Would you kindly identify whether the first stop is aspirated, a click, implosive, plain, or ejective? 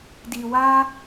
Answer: plain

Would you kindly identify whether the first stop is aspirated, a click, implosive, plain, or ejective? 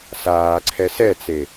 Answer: click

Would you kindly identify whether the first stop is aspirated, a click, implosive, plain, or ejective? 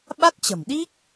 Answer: implosive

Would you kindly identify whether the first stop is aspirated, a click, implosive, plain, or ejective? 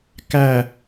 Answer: plain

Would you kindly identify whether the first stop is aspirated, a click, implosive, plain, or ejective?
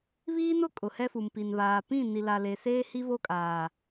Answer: ejective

